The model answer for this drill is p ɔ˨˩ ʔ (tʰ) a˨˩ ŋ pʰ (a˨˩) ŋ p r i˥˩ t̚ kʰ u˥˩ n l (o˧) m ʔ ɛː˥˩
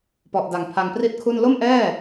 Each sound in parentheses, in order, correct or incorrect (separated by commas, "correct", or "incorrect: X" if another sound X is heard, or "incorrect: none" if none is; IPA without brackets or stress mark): incorrect: d, incorrect: a˧, incorrect: o˥˩